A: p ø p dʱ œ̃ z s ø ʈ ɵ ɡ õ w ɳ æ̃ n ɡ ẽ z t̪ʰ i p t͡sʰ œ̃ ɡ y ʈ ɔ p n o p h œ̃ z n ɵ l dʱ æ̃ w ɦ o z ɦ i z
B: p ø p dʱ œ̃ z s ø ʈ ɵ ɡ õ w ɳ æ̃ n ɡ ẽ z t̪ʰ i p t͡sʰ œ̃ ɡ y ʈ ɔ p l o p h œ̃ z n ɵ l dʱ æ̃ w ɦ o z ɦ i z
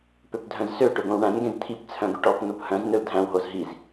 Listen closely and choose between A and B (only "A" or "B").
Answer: A